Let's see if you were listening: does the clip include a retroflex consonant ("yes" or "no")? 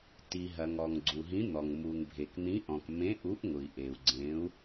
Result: no